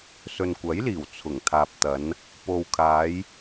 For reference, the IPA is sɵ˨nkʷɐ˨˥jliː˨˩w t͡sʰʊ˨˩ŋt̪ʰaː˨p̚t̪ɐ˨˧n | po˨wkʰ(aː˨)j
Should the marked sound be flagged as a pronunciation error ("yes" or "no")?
yes